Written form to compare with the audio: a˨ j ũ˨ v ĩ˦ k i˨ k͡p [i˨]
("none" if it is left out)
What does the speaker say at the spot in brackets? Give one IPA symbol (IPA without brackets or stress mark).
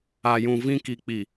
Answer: i˨